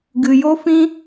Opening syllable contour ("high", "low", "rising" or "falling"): low